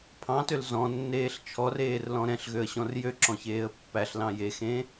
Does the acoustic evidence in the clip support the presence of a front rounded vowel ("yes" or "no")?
yes